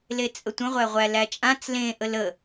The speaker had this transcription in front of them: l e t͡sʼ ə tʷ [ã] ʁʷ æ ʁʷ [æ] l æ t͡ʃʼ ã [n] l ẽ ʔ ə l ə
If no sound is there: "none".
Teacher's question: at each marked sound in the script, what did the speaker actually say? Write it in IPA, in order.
ə̃, æ, t͡s

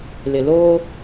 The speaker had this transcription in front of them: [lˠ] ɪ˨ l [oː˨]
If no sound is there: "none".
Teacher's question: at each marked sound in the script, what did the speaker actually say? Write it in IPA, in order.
l, oː˦

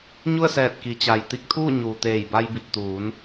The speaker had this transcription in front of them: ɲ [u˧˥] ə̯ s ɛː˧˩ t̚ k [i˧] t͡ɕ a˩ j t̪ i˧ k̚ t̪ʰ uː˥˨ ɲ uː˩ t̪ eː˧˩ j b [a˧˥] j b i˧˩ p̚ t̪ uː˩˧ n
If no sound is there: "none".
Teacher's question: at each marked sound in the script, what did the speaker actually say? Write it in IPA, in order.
u˥˨, i˩, a˧

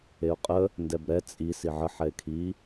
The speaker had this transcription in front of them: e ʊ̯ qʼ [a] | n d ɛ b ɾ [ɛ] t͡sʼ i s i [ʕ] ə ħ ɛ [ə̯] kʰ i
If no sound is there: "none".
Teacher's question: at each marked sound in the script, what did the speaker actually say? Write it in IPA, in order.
ə, ɛ, ʕ, ɪ̯

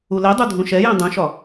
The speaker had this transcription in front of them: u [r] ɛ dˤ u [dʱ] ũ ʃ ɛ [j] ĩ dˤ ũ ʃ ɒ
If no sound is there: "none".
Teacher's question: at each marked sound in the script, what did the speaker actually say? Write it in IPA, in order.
l, dʱ, j

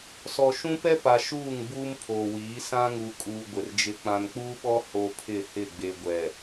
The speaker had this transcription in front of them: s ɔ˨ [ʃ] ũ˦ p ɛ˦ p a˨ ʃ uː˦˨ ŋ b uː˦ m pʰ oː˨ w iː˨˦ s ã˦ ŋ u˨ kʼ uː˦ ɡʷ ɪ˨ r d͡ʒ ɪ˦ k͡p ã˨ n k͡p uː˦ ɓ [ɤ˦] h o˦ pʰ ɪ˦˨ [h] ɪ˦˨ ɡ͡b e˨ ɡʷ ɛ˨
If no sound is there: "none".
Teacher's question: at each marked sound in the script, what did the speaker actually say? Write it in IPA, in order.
ʃ, ɔ˦, h

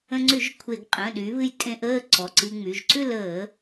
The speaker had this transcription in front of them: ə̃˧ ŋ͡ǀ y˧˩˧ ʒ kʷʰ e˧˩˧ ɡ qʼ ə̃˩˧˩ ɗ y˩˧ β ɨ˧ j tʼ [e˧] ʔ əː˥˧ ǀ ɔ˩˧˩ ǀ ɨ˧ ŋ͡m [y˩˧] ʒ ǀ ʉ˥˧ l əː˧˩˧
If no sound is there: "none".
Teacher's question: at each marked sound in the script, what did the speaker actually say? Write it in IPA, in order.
ẽ˧, y˩˧˩

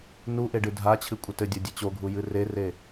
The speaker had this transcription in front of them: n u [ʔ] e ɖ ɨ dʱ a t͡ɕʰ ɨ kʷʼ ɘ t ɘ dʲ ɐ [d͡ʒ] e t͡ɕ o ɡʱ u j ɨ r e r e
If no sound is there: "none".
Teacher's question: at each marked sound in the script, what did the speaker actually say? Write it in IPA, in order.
ʔ, dʲ

